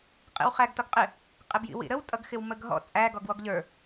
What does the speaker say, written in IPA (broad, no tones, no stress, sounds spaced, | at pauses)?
qʼ ḭ w χ æ ɡ t ɔ ɡ qʼ ɪ | qʼ ɪ b j ḭ w ḭ ɾ ə w tʼ ʌ ɡ x ɪ w m ə ɡ ɦ ɔ̰ t͡sʼ æ ɡ ɔ ɡ w ɔ ɡ ʎ ə˞